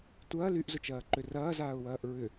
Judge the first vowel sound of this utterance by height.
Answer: low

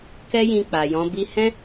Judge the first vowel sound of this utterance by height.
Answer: mid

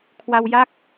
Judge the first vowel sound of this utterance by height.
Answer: low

